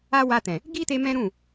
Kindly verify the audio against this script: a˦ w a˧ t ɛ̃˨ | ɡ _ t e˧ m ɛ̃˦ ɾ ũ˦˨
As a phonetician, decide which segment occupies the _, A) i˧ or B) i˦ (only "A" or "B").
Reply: B